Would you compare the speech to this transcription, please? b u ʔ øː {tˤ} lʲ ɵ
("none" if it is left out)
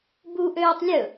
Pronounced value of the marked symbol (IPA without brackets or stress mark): tˤ